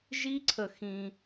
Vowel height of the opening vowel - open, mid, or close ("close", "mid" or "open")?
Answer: close